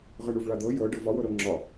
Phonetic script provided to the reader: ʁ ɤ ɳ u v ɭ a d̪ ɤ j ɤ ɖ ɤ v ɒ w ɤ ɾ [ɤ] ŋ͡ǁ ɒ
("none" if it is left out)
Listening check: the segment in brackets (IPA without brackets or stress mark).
ɤ